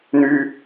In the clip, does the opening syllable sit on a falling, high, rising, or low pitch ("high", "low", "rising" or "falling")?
high